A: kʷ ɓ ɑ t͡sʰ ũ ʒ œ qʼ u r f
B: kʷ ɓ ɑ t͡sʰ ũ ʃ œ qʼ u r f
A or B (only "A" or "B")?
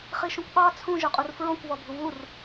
A